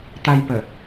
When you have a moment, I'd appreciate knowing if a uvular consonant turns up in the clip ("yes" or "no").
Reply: no